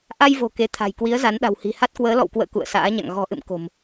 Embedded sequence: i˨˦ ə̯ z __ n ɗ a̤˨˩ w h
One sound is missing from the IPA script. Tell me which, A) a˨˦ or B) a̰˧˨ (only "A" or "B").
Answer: A